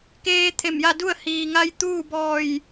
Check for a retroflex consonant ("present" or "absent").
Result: absent